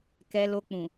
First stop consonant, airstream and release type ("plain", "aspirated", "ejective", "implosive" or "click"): plain